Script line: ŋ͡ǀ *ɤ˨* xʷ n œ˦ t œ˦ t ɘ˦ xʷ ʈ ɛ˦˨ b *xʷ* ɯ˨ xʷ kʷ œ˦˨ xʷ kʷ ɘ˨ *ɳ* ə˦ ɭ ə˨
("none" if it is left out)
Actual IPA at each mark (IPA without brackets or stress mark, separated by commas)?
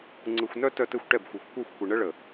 ɯ˨, xʷ, ɳ